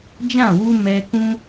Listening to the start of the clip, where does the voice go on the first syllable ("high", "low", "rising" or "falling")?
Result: falling